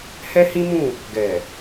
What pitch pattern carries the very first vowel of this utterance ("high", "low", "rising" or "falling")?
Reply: high